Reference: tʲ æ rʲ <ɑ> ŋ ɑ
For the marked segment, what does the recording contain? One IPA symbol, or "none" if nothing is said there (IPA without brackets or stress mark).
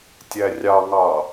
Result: ɑ